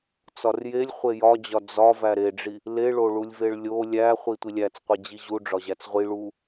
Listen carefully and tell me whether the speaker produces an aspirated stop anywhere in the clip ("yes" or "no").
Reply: no